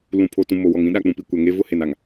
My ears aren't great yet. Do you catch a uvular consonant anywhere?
no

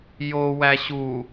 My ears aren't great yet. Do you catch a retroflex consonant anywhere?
no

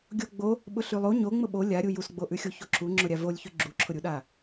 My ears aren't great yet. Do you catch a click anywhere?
yes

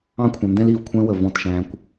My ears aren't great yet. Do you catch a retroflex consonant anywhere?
no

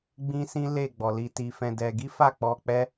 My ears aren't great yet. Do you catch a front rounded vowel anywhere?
no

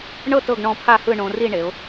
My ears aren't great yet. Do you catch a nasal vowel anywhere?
yes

